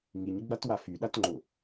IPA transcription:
ŋ i ɲ ɡ͡b a t w a f y ɗ a t ŋ͡ǃ ʊ

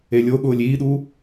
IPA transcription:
e lʲ o ɠ ʊː lʲ iː ɗ u

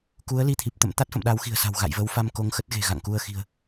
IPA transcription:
k u˨˦ ə̯ l i˧ t̪ʰ i˨˩ p̚ t̪ ə̰˧˨ m t̪ a˦˥ t̚ f ə̰˧˨ m ɗ a˨˦ w x i̤˨˩ ə̯ s a̤˨˩ w ɣ a̰˧˨ j v ə˨˦ w f a˧ m k o˨˦ ŋ x ə˦˥ t̚ ɣ e̤˨˩ ɣ a̰˧˨ ŋ k u˧ ə̯ x i̤˨˩ ə̯

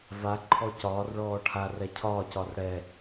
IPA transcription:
v a ǃʰ ɔ c ɒː r ɭ ɔː ʈʰ a r ɛ cʰ ɒː c ɒ r ɽ ɛ

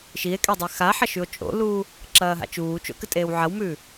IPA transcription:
ʃ i e̯ kʼ e dˤ e x a ħ ɐ ʃ ʉ o̯ t͡ʃʼ o̰ l uː | ǁ ɐː ɦ a̰ t͡ʃ uː t͡ʃ o̰ k ɨ tʼ eː w ʕ ɐ w m ʉː

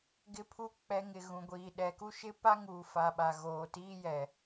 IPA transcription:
ɡ ɪ˦ pʰ u˦ k͡p ɛ˦ ŋ ɪ˨ ɣ ũ˨ ɡʷ iː˨ ɗ ɛ˨ k u˦ ʃ ɪ˦ p a˦ ŋ uː˨ f a˨ ɓ a˨ ɣ oː˨ t iː˦ j ɛ˨

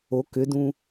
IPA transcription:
o k ʏ d ũ

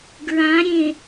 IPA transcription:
ɡ ɹ ã ɾʲ ẽ

